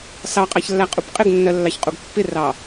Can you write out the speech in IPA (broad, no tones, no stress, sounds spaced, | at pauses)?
s ɑ qʼ ɑ ç lː æ qʼ u p qʼ ɪ ɡ nː ɜ lː ɑ ç qʼ u ɡ pː ɪ r ɑ